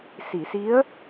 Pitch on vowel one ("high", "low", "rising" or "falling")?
low